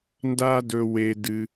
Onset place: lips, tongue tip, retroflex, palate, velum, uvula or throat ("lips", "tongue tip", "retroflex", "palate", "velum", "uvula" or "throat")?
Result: tongue tip